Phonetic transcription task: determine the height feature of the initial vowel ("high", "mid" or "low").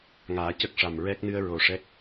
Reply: low